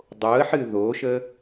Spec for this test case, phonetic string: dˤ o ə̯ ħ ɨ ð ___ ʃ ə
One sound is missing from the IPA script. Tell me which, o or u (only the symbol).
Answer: o